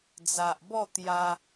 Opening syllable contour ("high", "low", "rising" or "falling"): low